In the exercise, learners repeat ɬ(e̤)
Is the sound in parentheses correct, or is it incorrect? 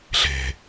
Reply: correct